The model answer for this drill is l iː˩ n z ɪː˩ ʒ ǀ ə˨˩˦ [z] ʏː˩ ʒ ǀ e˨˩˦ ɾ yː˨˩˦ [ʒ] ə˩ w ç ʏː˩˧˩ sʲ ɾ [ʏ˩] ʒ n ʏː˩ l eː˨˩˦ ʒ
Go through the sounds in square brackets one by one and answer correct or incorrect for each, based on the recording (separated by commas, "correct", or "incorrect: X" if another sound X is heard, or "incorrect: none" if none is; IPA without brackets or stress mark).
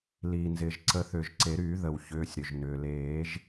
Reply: incorrect: θ, incorrect: ð, correct